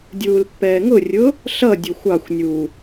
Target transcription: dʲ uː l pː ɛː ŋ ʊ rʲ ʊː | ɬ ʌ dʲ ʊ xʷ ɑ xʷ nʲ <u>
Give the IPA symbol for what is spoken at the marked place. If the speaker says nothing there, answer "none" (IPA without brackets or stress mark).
uː